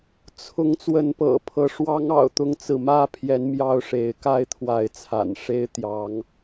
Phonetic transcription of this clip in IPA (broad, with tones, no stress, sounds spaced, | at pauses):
t͡sʰ ʊ˨˦ ŋ t͡s w ə˨˦ n p ɤ̰˨˩ pʰ ɤ˨˦ ʂ w ɑ˦ ŋ ɑ̰˨˩ ʊ̯ t̪ ʊ˥˨ ŋ t͡s ɹ̩˥˨ m ä˥˨ pʰ j ɛ˨˦ n m j ɑ˦ ʊ̯ ʂ e˨˦ ɪ̯ k a˥˨ ɪ̯ t̪ʰ w a˨˦ ɪ̯ t͡sʰ a̰˨˩ n ʂ e˦ ɪ̯ t̪ j ɑ˨˦ ŋ